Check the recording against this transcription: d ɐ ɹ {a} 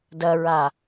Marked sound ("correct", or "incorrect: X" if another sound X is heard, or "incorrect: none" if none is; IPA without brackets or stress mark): correct